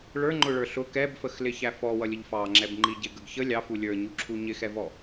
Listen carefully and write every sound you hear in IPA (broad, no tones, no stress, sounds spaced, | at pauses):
ɭ ə˞ ŋ͡ǃ ʊ ɭ ə˞ ɬ ʊ k ɛ b f ə x l ɪ ç æ f ɔ w ʌ lʲ ə ʎ f ɑ ŋ͡ǁ ɛ b ŋ͡ǃ i ɟ ɪ ɡ ə ɡ ç ə lʲ ɑ f u lʲ ə˞ ɲ u ǁʰ u ɲ ɪ x ɛ v ɔ